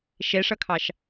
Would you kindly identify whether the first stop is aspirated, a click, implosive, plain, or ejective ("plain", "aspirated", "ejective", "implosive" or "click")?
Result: aspirated